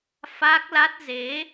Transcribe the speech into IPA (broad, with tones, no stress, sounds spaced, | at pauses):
f aː˦˥ k̚ l a˦˥ t̚ z e˨˦